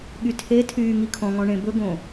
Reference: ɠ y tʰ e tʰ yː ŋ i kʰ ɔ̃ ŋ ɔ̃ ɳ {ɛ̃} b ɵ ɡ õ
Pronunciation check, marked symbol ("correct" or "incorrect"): incorrect